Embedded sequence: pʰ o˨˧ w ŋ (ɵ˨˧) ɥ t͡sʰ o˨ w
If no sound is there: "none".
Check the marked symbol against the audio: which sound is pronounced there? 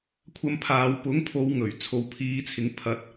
ɵ˨˩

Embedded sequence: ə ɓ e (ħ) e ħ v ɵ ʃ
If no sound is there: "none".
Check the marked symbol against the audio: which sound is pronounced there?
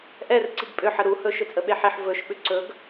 ħ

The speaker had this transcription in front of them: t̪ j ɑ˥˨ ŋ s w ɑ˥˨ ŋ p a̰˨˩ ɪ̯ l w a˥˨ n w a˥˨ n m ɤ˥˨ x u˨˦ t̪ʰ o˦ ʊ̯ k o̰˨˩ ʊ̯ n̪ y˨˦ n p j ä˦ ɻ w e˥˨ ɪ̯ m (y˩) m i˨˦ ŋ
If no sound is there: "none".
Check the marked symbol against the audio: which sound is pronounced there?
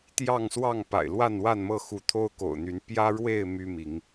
y˦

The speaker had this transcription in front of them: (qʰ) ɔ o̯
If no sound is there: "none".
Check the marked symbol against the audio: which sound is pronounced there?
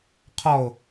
qʰ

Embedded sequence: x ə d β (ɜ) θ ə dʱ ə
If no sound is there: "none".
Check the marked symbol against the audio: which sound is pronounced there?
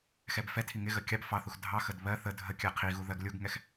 ɜ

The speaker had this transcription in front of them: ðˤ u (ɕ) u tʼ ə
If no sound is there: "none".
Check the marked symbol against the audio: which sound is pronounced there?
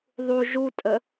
ʒ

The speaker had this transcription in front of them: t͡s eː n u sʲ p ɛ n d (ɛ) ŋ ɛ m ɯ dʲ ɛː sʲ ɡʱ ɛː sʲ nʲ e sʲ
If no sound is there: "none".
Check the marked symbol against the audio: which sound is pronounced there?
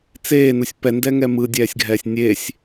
ɛ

